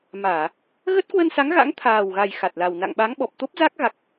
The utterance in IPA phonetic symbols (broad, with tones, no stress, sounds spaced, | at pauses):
m aː˧˩˨ | ɣ ə˦˥ t̚ k w ə˧ n s a˨˦ ŋ ɣ a̰˧˥ ŋ t̪ʰ aː˨˩ w ɣ a˨˩ j x a˨˩ t̚ l a˨˩ w n a̰˧˨ ŋ ɓ a˨˦ ŋ ɓ ɔ˨˩ p̚ t̪ o˦˥ p̚ z a˦˥ k̚ ɣ a˦˥ k̚